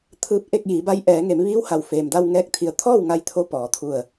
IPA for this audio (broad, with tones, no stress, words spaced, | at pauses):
t̪ʰɯː˧˥p̚ ʔe˥˨k̚jiː˩˧ba˧˥j ʔɛː˩˧ŋe˩˧mʋiː˧˥wha˩w feː˩mda˧w ŋɛː˥˨k̚t̪ʰi˧ə̯ t̪ʰɔː˥˨wŋa˧jt̪ʰo˧ pɔː˩˧t̪ʰu˧˩ə̯